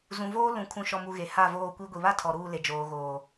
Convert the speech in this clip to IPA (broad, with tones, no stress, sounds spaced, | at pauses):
z ũ˨ v oː˦ l ũ˨ kʰ ũ˨ ʃ ɔ˨ m u˨ ɣ e˨ h a˦˨ v oː˦˨ kʷ i˦ ɡʷ i˨ β a˦ tʰ ɔ˨ ɾ uː˦˨ l e˨ d͡ʒ oː˨ ɣ oː˨